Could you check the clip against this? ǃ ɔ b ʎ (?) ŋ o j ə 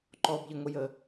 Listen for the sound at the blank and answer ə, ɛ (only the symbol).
ə